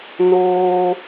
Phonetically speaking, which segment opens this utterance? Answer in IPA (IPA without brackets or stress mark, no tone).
n